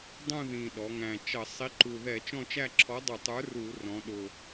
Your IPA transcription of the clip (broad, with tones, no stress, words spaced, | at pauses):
dˤũ˦˨ðĩ˨˩ ɗɔ˩˧ŋæ̃˨˩t͡ʃʌ˧˩˧ sˤi˨˥ǃu˨˩ ðɛ˧˩˧t͡ʃɔ̃˦˨t͡ʃæ˦˨ ǁʰɔ˨˥dˤʊ˧˩˧tˤə˞˨˥ ru˧˩˧rɔ̃˩˧ɗʊ˨˩